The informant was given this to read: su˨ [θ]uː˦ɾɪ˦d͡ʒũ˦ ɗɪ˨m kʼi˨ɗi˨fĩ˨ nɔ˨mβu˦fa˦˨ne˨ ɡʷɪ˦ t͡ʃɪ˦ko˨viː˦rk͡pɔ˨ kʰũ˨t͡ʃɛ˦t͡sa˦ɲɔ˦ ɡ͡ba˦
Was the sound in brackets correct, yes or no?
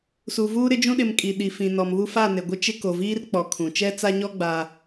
no